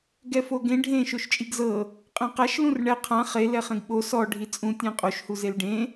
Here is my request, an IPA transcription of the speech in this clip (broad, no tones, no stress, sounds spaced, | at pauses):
ɡ ɛ f o ɡ ẽ ɖʱ ẽ ʃ o ʃ t͡ʃʼ i ɡ z ɤ | qʼ ẽ q a ʃ l ũ r ɳ ɛ qʰ ã χ e l ɛ χ ẽ ɡ ɓ o s ɔ ɖʱ i t͡sʼ ũ tʲ ɛ̃ qʼ o ʃ h u z e l ɖ ẽ